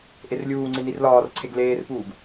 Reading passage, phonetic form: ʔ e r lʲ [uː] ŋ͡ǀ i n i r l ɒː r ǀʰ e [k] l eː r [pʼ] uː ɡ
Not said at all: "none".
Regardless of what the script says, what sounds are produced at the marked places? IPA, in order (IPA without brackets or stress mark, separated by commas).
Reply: uː, ɡ, p